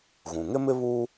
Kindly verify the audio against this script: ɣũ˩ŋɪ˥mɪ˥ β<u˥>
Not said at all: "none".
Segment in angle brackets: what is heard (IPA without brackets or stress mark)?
u˥